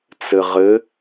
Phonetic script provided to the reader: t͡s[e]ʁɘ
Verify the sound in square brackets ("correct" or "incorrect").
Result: incorrect